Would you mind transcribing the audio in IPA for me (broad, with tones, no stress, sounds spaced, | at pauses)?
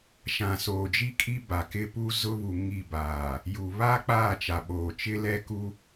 ʃ ã˨ s oː˨ d͡ʒ i˦ kʼ i˦ b a˨ k ɪ˦ p u˦ z ʊ˦ β u˨ ŋ i˦˨ b aː˨ | j u˨ β a˦ k͡p aː˦˨ t͡ʃ a˨ ɓ oː˨ t͡ʃ ɪ˦ l ɛ˦ k u˦